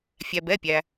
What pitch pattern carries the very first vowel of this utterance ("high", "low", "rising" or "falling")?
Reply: low